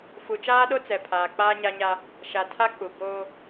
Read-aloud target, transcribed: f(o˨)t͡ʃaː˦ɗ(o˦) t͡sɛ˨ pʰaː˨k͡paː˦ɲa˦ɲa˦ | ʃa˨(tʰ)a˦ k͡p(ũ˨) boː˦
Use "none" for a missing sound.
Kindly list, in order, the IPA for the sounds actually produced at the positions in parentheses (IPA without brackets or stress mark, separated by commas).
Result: u˨, o˦, tʰ, u˨